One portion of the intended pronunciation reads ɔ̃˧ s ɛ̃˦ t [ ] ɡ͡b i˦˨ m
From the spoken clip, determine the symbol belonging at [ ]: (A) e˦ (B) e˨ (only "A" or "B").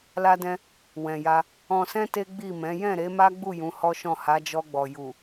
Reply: A